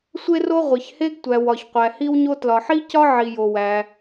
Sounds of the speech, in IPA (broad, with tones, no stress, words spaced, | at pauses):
sʷe˥ro˥ ʁʷe˩çhe˥ɡ tʷæ˩w ɒ˩çqʷæ˩hi˥wɲo˥ tlɒ˩ħi˥cɒ˥ʕi˩ jo˩ wæ˩